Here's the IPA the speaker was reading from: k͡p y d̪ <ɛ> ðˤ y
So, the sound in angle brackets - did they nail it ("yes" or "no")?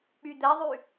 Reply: yes